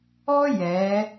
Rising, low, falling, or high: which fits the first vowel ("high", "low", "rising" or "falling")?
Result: high